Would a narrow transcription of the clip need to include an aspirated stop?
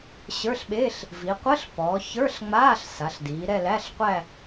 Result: no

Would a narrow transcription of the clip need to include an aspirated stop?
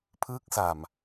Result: yes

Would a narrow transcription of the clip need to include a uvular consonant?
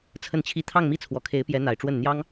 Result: no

